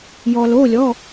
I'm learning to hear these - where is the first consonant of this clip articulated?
palate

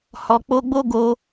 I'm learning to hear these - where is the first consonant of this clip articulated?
throat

